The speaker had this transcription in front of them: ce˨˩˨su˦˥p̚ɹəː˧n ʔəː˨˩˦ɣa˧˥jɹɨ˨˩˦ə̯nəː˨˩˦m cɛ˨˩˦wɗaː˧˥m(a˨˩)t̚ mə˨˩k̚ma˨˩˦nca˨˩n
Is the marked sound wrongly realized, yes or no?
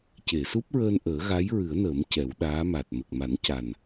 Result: no